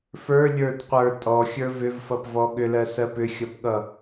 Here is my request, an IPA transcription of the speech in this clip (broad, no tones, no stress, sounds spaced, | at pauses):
f ə˞ lʲ ə˞ d qʷ ə˞ tʼ ɔ xʲ ə˞ v ʏ v f ʌ p v ɔ ɠ ʏ l ɜ s ɜ p ʏ xʲ ʌ p ɠ ʌ